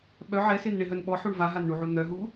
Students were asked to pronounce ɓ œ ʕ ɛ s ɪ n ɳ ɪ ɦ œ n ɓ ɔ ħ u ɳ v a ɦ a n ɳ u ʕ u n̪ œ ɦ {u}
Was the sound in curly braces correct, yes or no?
yes